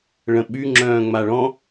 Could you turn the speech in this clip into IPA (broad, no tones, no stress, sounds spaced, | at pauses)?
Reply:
ɭ ə̃ ɓ y ŋ͡ǁ œ̃ː ŋ͡m a ɭ ɔ̃